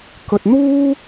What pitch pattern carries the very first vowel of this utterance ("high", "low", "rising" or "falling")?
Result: low